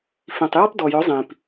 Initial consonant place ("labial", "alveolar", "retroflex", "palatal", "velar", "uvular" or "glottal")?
labial